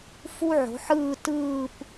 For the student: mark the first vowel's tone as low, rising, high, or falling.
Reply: high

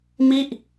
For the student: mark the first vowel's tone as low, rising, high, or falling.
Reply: falling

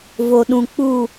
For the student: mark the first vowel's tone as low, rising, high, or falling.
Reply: low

